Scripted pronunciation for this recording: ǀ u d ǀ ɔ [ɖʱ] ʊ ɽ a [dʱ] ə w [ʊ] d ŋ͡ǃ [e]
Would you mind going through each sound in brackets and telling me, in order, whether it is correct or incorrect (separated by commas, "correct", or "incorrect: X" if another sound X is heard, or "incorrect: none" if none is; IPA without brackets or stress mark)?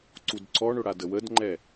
incorrect: ɳ, incorrect: d, incorrect: ə, incorrect: ɛ